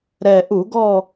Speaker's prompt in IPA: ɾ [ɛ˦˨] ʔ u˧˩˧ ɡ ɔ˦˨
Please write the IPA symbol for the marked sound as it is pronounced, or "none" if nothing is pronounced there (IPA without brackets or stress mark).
ɛ˨˩